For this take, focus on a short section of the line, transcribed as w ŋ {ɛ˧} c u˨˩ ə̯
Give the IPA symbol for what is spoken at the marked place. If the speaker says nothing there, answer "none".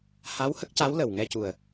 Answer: ɛ˧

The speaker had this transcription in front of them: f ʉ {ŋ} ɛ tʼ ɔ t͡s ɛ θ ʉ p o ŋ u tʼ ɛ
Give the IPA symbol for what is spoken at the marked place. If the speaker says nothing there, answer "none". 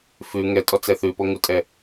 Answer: ŋ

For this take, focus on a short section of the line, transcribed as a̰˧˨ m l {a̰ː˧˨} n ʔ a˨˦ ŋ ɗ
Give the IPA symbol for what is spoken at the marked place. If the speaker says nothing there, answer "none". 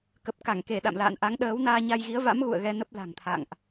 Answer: a̰ː˧˨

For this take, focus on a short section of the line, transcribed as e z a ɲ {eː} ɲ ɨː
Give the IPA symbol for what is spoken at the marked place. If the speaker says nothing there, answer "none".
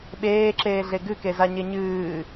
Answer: e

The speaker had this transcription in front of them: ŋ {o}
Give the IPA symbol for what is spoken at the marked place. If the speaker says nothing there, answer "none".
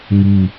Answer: u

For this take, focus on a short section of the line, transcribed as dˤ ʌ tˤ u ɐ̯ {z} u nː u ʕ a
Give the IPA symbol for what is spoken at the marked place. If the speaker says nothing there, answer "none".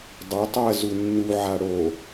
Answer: z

